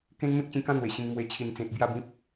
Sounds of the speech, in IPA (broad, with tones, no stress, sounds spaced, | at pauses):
k ẽ˦ n m ẽ˦ k̚ t͡ɕ ĩ˧ k ã˦ n̪ w e˨˩ ɕ ĩ˧ ŋ m w e˧ t͡ɕʰ i˨˩ n t͡s ẽ˨ t̚ b j a˥˧ b ĩ˦ p̚